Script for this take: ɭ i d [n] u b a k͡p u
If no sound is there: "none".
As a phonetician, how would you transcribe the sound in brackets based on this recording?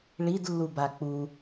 lː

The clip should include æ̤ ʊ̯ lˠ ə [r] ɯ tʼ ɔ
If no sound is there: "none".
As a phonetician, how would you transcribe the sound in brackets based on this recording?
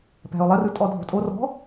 r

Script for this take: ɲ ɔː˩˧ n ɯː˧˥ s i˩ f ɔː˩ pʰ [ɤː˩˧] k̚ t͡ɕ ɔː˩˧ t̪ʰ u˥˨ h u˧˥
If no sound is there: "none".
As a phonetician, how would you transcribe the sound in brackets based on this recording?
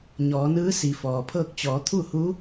ɤː˥˨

